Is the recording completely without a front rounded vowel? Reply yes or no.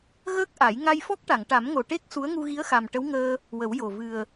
yes